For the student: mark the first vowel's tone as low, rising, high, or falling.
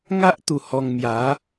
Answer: high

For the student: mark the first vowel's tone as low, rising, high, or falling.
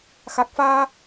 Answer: low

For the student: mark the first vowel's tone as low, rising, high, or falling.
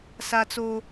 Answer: high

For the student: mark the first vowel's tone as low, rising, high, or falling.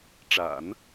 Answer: low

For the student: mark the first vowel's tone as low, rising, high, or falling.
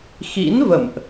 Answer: rising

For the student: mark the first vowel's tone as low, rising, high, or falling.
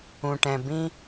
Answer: low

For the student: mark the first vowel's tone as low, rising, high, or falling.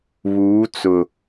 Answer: rising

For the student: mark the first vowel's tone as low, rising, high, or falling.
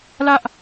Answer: high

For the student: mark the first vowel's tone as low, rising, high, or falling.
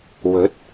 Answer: rising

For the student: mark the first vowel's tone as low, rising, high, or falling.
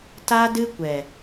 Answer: high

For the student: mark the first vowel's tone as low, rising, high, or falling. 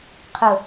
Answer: low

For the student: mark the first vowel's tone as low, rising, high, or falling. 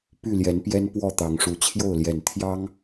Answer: falling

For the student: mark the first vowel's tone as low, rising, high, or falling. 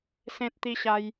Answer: high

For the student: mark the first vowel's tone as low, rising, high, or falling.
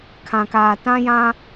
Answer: low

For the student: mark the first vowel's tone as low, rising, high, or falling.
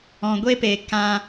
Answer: low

